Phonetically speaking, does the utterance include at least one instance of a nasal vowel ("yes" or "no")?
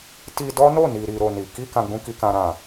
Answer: yes